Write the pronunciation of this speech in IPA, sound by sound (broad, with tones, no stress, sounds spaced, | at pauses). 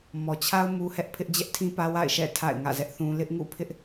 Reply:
m ɔ˨ t͡ɕʰ a˦ ʊ̯ m u˦ h ɛ˦ ʔ pʰ ɪ˦ ʔ d͡ʑ ɛ˦ ʔ tʰ ĩ˦ p ä˦ w a̰˦˨ ɪ̯ ʃ ɛ̰˦˨ tʰ a̰˦˨ ɪ̯ ŋ ä̰˦˨ z ɛ˦ ʔ θ ũ˦ l ɪ˦ ʔ ŋ ṵ˦˨ pʰ ɪ˦ ʔ